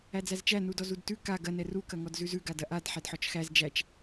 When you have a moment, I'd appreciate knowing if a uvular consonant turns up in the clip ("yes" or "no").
no